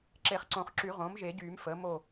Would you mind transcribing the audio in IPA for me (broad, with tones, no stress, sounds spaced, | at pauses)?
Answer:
ǁ e˨˩˦ χ ǀ õ˨˩˦ χ ǁ y˨˩˦ ʁ õː˩˥ m ʒ e˨˩˦ ɟ yː˨˩˦ m f əː˩˥ m o˥˨